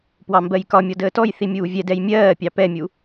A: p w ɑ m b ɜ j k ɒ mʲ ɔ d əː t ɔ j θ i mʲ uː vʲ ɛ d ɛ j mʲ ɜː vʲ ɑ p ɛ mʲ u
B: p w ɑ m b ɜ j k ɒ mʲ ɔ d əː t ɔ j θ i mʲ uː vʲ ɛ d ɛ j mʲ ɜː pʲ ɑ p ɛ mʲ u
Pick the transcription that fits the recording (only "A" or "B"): B